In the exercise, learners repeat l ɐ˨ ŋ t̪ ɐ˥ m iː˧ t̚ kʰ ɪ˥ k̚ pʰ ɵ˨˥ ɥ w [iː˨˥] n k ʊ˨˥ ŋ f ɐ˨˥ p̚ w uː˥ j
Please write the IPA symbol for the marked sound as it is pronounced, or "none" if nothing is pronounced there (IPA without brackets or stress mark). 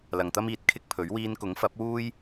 iː˧